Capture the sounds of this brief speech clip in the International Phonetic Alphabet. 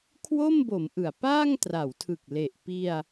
kʰwo˥˩mbo˩˦m ʔɯ˩˦a̯paː˥˩ŋtra˩˦wtʰɯ˨˩k̚ le˨˩ʔ pi˧a̯

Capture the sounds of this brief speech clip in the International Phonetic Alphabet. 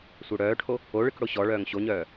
sʷœɽœːʈʰo | oɭɨk ɽoɕɔɭœːŋ ɕoɲœː

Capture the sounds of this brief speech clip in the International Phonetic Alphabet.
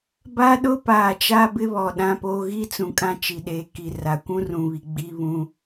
ba˦ɗʊ˦ paː˨t͡ʃa˦bɪ˦βɔ˨ ɗã˦poː˦ ɣi˦t͡sũ˨kʼã˦ t͡ʃi˨ɗeː˨ki˨ra˨ kʷũ˦rũ˨βi˨ ɡ͡bi˦βũ˦

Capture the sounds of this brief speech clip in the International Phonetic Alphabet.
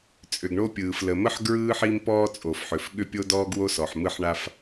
t͡sʼʏ˩ɡɳo˥pʲɯː˩f lə˩mə˥ħ ɡɹɯː˥ħi˥m pɔː˥t͡sʼo˩fħʏ˩fɠʏ˥ pʲo˥dɔː˥ɡwo˥sɔ˩ħ mɯ˥ħɳa˥f

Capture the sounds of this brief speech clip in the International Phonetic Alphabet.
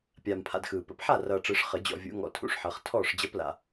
pʲaː˨mpʰa̰˨d xɯː˨ pə̰˨˩˦pħa˥˩rʌː˨ʈ͡ʂɯ˨˩˦ʂ χə˨˩˦d͡ʑɔ̰˨vʲṵ˨˩˦ŋɔ̰˨ tʰṵ˥˩ʂħʌ˨˩˦χ tʰɔː˥˩ʂd͡ʑʌ˧˥pla̰˨

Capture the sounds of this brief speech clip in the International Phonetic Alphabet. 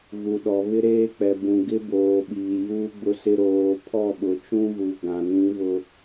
ɣu˨ɗɔ˨ βɪ˦ɾeː˦k͡pɛ˨ bũ˨ ɡɪ˦boː˨ ɓiː˨juː˦ɡ͡bʊ˦sɪ˦ ɾoː˨ pʰɔ˦˨ɓʊ˨t͡ʃũ˦ɣu˨ ɡã˨nĩ˨˦βʊ˨

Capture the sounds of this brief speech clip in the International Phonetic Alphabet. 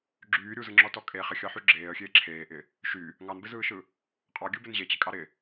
ɡ͡ǁyː ɾʲuzɯŋ͡ǁɔtɔ kʼe χɪxʲɑħy ɡ͡ǁeːə̯xʲeː ǁʰeːʔɪ | ʃy | ŋɑnbɪzɯːʃɯ | qʼɑɡʲɯbɪn ʑet͡ɕɪkʼɑ ɾɪ

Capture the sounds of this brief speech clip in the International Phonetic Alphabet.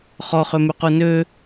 χɔχømyqu nø

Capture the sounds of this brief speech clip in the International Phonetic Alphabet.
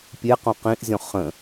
pʲeqõ qĩʔzʲɔ̃ χə̃

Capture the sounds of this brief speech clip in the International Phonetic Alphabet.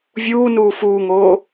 vʲuːnuː fuːŋoː

